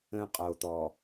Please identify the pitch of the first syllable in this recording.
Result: high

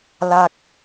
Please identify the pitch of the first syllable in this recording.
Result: low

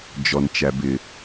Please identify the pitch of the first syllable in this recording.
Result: low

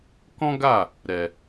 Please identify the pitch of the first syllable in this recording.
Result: high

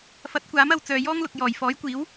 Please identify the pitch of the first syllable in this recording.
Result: rising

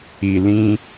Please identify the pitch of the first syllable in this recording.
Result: low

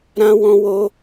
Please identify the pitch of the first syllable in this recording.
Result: high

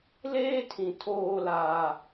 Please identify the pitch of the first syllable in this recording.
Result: high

